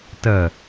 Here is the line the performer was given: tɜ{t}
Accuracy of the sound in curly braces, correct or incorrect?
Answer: incorrect